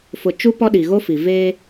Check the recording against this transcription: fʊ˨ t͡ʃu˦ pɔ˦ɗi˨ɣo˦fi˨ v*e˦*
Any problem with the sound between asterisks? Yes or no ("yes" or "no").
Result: yes